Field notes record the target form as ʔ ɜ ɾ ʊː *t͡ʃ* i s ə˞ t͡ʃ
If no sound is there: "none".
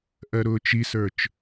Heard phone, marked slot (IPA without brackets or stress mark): t͡ʃ